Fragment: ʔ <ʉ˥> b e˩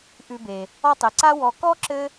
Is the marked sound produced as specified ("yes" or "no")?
no